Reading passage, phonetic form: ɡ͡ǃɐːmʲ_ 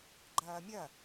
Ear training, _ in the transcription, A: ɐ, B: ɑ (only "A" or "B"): A